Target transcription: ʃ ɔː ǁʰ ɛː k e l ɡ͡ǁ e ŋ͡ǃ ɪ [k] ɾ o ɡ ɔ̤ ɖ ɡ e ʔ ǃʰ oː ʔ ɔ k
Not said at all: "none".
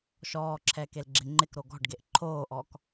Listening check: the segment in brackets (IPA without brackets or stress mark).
k